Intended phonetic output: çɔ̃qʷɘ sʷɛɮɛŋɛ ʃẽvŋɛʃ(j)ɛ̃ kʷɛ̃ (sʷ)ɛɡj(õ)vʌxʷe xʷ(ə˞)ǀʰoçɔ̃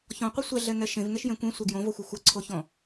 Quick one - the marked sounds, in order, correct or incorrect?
correct, correct, correct, incorrect: ʌ

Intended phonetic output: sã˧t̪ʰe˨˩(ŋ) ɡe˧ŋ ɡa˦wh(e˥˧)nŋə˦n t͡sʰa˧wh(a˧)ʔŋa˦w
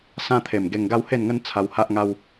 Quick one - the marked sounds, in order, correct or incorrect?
incorrect: m, correct, incorrect: a˦

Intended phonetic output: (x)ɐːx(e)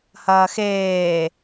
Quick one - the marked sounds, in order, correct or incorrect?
incorrect: h, incorrect: eː

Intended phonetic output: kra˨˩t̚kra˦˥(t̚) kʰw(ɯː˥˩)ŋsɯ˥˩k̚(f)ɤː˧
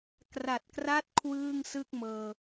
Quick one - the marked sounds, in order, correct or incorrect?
correct, correct, incorrect: m

